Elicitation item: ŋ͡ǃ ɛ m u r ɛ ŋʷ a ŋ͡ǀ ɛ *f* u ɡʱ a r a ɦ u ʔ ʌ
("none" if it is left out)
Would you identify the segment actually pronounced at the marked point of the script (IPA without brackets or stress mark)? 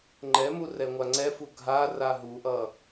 f